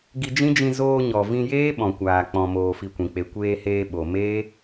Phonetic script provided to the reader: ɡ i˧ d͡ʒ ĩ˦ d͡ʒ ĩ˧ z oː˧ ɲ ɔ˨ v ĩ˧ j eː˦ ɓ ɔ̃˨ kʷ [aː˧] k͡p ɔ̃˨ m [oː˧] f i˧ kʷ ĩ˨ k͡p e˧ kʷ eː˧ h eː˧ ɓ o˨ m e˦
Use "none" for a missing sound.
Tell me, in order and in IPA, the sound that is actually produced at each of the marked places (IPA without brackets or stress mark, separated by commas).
aː˨, oː˧